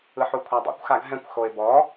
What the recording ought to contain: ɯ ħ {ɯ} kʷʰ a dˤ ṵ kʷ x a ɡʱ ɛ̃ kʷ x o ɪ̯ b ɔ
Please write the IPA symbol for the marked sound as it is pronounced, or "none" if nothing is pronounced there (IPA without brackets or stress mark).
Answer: u